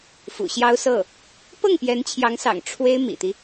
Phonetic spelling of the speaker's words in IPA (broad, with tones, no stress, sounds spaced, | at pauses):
f ṵ˨˩ ɕ j ɑ˥ ʊ̯ s ɤ˥˩ | p ɤ˥˩ ŋ p j ɛ˧˥ n t͡ɕʰ j ɑ˧˥ ŋ s ɑ̰˨˩ ŋ ʈ͡ʂʰ w e˥ ɪ̯ m ḭ˨˩ t̪ i˦